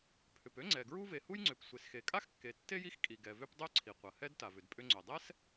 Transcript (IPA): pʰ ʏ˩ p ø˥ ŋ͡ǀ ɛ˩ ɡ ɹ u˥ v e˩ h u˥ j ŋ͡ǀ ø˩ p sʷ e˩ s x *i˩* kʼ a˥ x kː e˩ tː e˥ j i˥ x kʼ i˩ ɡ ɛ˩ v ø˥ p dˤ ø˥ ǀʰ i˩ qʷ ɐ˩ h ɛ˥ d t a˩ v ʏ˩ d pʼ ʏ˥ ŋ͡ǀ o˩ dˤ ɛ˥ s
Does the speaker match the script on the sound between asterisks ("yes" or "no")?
no